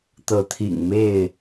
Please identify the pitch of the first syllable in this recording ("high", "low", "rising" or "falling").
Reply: rising